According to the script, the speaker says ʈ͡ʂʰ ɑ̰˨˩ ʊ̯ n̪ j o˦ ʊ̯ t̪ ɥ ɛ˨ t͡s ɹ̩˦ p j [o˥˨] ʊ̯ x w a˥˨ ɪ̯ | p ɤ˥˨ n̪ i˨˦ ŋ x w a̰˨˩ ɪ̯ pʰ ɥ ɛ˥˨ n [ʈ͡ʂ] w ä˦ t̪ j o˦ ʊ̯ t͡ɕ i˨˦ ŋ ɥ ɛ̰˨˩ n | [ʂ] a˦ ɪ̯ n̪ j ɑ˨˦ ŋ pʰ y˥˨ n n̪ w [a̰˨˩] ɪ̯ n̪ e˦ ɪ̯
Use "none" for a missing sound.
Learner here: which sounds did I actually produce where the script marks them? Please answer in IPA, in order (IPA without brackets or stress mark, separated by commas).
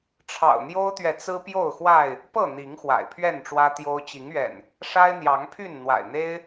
o˥˨, ʈ͡ʂ, ʂ, a̰˨˩